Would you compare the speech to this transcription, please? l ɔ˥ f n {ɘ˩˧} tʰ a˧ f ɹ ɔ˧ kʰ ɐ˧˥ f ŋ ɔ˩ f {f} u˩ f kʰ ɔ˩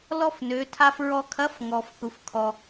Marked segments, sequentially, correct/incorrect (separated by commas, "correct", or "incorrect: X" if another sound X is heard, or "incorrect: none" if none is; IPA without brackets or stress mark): incorrect: ø˩˧, incorrect: θ